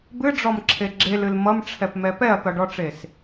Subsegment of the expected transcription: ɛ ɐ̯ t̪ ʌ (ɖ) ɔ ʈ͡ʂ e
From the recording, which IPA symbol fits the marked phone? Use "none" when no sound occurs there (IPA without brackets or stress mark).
ɖ